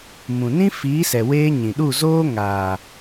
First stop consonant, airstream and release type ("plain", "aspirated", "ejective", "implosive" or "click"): implosive